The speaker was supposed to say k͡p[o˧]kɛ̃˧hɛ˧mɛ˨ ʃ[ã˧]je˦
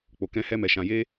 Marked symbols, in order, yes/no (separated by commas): no, yes